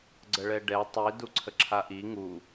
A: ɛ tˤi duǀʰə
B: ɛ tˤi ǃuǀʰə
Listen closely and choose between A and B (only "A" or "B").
A